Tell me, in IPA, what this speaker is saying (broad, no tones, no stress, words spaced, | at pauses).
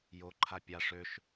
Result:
joǃʰa pʲaʂ øʃ